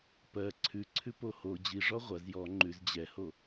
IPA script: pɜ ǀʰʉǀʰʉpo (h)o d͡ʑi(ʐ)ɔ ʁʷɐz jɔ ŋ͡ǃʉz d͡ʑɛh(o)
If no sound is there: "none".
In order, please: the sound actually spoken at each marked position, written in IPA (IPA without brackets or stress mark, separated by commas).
h, ʐ, o